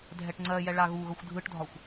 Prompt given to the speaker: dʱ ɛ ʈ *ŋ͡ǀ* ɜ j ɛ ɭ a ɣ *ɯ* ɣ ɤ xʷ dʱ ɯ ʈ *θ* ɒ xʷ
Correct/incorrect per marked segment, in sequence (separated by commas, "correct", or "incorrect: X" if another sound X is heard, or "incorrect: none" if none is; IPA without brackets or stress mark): correct, incorrect: u, incorrect: dʱ